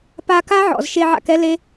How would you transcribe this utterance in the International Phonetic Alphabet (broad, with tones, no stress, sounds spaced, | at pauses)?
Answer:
p a˧ k a˦ ʕ ɔ̰˨ z ʃ e˧ ʕ a̰˧ k ɛ˦ l e˦